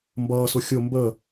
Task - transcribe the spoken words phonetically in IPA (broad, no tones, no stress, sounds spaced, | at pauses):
m b ʌː s ʊ xʲ ʊ m b ə